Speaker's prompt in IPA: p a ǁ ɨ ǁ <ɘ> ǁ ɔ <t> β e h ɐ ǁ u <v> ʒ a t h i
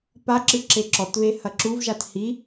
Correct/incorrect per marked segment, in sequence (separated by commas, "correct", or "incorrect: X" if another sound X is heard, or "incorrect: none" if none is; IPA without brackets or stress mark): incorrect: e, correct, correct